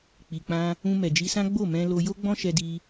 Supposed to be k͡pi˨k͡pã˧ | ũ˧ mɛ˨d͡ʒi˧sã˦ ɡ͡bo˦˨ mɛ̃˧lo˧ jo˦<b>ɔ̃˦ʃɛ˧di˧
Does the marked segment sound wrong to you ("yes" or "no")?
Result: yes